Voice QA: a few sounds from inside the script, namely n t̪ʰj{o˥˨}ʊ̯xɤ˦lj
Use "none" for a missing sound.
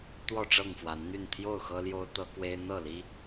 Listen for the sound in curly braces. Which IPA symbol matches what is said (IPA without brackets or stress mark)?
o˥˨